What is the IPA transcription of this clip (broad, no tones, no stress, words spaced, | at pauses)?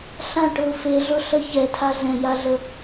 ɬãʈʊː feɮʊɬə çɛtʰa ɮɛ̃jaɮə